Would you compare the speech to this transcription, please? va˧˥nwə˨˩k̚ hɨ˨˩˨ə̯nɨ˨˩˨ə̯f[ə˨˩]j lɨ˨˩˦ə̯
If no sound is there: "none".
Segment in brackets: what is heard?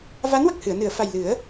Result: a˨˩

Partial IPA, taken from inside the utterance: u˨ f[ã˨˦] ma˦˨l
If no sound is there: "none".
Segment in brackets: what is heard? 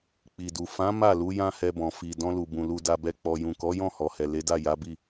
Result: ã˨˦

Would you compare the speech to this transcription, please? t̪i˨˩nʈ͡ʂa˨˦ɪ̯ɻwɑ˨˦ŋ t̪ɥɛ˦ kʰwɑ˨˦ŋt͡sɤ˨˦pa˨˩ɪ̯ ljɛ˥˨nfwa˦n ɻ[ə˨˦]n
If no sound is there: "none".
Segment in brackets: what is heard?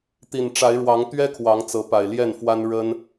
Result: ə˦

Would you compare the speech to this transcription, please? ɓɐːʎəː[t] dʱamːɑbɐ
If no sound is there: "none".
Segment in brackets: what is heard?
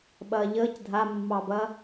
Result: c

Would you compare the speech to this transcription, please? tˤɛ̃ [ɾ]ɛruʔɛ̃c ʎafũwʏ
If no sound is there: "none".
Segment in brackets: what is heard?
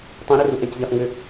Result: ɾ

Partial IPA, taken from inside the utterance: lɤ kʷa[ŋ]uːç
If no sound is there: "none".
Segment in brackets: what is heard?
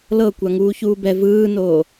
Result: ŋ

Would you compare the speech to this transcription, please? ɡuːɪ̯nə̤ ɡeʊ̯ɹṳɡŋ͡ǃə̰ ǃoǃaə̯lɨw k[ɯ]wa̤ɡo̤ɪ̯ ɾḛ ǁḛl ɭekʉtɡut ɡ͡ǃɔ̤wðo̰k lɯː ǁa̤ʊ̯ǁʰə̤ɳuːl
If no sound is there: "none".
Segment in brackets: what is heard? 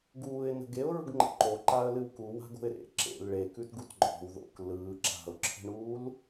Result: u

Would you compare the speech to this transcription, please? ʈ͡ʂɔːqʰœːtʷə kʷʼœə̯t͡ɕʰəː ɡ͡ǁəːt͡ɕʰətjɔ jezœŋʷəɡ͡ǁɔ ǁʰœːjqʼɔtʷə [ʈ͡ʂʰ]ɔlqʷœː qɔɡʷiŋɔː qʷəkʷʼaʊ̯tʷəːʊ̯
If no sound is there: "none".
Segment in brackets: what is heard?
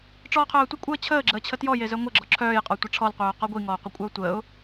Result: ʈ͡ʂʰ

